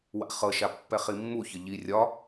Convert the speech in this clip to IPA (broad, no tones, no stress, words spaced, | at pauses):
wa̰χɤʃa pːɛχimːuçə ʎi rʲɒ